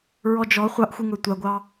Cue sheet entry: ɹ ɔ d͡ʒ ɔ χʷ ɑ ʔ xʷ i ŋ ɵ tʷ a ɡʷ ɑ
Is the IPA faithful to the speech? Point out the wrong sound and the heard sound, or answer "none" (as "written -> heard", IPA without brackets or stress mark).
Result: none